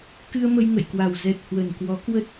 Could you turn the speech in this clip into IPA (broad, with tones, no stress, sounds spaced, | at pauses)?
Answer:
k ɨ˧ ə̯ m ə˧ j ŋ ə̰˧˨ j k w a˨˩ w z ɛ˨˩ t̚ h w ə˨˩ n k w ɔ˨˦ k w ə˦˥ t̚